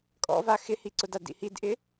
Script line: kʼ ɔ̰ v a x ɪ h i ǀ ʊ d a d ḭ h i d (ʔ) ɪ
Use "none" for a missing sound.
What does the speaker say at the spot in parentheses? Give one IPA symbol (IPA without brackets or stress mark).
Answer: ʔ